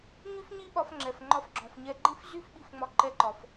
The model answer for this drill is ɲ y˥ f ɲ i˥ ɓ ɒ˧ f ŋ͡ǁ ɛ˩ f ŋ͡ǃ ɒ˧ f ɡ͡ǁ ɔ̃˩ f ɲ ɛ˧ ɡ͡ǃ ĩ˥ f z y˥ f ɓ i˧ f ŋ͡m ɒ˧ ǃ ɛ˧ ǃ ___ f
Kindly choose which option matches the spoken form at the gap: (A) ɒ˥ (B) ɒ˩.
B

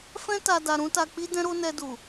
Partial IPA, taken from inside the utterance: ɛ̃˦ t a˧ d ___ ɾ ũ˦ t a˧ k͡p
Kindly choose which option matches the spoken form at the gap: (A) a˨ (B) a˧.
B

